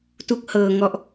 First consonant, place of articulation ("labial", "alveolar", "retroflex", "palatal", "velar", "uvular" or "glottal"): alveolar